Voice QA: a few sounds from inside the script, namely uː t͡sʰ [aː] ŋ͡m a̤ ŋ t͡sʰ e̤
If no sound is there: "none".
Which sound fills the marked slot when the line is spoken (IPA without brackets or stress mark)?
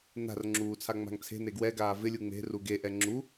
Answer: a